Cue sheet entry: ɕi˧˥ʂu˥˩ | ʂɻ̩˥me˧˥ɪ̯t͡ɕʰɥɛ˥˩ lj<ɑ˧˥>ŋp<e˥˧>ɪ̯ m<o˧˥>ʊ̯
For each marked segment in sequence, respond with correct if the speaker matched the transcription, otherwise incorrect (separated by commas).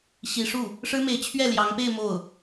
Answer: correct, correct, incorrect